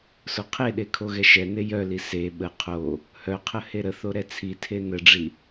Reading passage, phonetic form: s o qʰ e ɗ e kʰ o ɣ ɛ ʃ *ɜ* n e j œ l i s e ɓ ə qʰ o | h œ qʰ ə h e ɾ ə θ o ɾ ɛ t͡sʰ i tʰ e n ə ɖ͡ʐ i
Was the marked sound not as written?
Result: yes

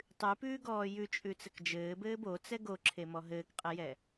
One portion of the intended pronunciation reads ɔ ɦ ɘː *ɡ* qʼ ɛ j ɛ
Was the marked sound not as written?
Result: yes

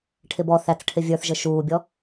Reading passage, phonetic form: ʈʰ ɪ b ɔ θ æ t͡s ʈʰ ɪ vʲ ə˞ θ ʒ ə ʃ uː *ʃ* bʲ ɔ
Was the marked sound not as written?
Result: yes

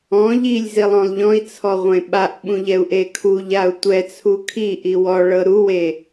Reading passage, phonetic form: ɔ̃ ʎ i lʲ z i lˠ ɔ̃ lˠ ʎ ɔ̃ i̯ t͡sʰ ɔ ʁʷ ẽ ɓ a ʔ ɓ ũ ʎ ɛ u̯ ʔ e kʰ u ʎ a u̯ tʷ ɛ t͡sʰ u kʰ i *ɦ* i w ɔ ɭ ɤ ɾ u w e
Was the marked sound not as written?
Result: yes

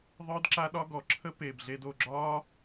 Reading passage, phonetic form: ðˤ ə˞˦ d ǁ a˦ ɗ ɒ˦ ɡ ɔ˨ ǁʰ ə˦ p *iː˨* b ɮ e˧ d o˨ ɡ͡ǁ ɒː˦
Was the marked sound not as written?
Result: yes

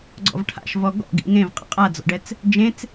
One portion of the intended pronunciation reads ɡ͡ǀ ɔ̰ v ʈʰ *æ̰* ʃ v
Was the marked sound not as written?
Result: yes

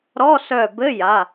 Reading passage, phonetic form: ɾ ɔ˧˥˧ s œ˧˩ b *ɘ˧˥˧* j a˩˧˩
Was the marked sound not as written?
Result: no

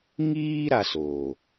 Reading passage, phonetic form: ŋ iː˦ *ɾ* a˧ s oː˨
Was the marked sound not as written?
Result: no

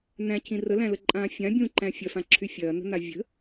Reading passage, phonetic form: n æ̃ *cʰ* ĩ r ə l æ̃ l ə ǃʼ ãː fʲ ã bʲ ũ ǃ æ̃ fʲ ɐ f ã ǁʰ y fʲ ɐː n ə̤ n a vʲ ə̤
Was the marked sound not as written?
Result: no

